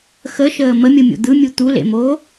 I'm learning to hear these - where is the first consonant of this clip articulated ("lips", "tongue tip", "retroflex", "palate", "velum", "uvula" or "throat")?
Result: velum